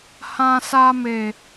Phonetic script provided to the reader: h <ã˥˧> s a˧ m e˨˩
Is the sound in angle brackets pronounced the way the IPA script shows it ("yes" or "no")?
no